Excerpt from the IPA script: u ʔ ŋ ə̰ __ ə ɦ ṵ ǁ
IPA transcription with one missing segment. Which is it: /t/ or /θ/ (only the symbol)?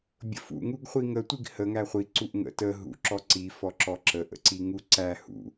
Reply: t